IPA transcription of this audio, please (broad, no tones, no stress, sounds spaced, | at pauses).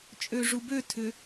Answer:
t͡ʃʼ ø ʐ u b ø tʰ ʏ